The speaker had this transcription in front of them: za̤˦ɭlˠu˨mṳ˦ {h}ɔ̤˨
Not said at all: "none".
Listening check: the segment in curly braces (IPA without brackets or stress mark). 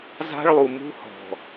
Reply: h